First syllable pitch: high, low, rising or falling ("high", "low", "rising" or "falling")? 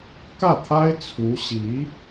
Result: falling